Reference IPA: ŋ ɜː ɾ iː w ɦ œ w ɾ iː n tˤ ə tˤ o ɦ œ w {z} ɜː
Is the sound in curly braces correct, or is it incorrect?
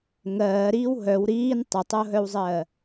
incorrect